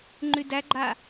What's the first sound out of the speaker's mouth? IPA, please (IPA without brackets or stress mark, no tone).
ŋ͡ǃ